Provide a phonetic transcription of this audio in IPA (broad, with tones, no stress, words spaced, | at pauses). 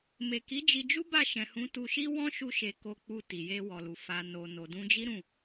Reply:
me˨ki˨˦d͡ʒi˧d͡ʒu˦ ba˦˨ʃɛ̃˨hũ˨˦ tu˧ʃi˦ wɔ̃˦ʃu˧ʃe˨ ko˨k͡pu˨ ti˨je˧wɔ˨lu˨ fa˨ no˨ no˨dũ˧d͡ʒi˦ ɾũ˦˨